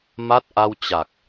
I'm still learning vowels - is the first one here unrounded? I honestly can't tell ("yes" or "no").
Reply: yes